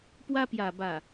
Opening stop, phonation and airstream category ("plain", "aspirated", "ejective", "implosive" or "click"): plain